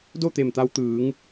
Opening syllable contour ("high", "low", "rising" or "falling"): falling